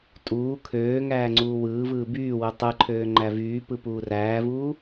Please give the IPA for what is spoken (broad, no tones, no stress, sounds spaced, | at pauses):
tʼ uː kʰ øː ŋ æː ŋ͡ǀ uː w ɯː v ɯː b yː w u tˤ ɯ ǃʰ øː ŋ͡ǃ æ v yː p ɯ p uː r æː v uː